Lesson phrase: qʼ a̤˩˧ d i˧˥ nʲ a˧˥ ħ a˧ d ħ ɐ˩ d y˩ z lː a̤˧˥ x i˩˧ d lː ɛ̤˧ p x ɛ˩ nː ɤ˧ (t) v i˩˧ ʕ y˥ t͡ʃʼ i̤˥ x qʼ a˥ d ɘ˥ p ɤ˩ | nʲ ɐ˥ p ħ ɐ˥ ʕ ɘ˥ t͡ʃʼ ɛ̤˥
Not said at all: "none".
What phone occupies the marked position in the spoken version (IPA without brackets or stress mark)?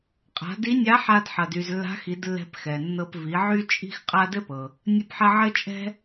p